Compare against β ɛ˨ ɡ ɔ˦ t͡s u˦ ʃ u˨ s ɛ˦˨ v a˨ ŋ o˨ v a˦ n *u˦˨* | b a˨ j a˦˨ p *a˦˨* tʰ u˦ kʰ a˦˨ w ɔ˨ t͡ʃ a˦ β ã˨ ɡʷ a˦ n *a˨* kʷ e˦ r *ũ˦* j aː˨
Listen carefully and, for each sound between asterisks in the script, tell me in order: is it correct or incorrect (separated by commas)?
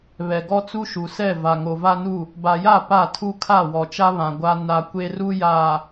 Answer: correct, correct, incorrect, incorrect